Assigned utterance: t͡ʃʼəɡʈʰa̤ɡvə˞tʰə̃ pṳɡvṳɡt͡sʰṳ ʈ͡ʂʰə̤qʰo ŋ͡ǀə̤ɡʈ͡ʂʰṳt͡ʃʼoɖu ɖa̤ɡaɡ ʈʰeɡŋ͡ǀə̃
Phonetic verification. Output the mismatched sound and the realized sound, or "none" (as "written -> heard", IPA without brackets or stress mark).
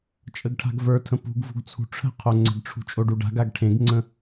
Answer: e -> ẽ